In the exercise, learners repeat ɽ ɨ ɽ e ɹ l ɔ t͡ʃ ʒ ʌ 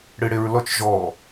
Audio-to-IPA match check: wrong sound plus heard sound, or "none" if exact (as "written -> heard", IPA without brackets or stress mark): ʌ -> ɔ